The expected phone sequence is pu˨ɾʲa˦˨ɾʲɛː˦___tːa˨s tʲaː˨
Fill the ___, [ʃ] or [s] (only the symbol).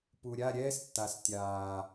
s